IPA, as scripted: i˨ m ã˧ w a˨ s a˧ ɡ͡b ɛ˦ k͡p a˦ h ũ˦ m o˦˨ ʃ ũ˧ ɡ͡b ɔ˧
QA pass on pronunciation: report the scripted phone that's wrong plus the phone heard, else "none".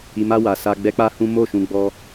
ã˧ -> a˧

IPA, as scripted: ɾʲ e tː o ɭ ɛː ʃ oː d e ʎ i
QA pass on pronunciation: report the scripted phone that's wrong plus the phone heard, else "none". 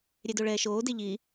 tː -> d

